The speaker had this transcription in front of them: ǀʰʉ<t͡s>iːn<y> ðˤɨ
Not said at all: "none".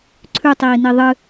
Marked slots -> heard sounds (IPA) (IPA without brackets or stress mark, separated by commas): tˤ, i